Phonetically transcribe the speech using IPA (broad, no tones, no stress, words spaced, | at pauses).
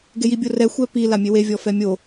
ɡejibʲorɛ xʷɛpi lamʲewe vʲɔfɛmʲo